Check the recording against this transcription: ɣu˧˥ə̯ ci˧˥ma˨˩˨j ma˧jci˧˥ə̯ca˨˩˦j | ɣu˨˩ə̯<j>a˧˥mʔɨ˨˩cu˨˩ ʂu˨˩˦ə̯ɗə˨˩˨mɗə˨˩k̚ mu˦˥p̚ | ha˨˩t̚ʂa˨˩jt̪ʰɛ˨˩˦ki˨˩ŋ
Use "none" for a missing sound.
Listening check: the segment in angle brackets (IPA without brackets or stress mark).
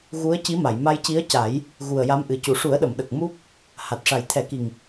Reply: j